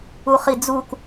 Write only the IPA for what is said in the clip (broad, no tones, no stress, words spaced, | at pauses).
uχid͡zuk